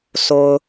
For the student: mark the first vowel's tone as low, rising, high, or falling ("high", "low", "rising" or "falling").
high